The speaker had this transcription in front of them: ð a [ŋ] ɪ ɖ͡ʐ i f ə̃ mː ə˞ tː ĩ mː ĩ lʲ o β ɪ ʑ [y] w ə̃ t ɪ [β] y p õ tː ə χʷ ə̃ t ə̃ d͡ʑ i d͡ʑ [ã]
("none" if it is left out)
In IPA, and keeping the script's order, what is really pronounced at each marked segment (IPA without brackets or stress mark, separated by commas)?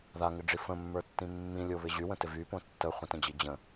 ŋ, y, v, ə̃